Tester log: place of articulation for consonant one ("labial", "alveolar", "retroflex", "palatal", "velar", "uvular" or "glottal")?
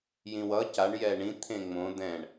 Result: palatal